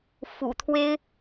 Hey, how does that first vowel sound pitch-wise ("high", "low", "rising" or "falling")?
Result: low